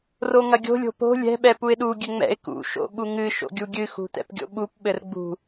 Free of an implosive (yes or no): no